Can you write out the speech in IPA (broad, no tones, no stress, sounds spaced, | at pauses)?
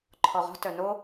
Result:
ǃʰ ɔ ʁ ɔ̤ t œ n o